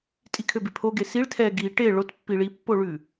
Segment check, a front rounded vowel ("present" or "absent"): present